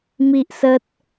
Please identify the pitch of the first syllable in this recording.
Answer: high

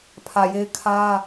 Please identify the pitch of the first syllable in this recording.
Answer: low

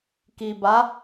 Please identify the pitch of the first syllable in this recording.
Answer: low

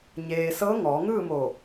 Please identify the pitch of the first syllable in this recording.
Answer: low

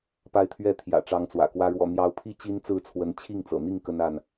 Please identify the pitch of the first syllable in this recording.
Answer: rising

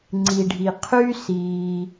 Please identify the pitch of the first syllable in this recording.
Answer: low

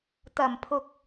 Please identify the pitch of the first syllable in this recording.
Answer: low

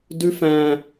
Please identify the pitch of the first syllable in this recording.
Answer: high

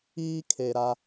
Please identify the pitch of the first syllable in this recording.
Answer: high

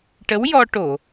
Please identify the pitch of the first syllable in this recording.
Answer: rising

